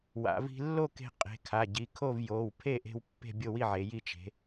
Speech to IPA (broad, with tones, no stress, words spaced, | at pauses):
wa̰˩˧vi̤˧ lːo˥˨ke̤˧ qʼe̤˩˧˩kʰa˩˧˩ɟi˩˧˩kʰo˥˨v joː˩˧˩wpʰe˥˨ʔe̤˧w pːe̤˥˨bʲo˥˨wi˥˨ʕe˩˧ ji˧t͡ʃe̤˩˧